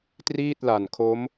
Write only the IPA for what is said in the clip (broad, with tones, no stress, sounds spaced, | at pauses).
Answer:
t r iː˥˩ t̚ l a˨˩ n kʰ o˦˥ m